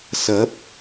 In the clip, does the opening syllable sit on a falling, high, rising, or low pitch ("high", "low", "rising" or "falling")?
rising